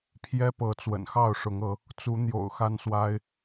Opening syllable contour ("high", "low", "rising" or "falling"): high